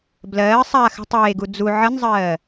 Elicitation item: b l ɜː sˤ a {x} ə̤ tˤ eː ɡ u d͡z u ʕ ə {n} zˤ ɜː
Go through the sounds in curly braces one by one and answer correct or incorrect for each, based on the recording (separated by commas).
correct, correct